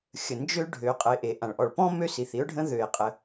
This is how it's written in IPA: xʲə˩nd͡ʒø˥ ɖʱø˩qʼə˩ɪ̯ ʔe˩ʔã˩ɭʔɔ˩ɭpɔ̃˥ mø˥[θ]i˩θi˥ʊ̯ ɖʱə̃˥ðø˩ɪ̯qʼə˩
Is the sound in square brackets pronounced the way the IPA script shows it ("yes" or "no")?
no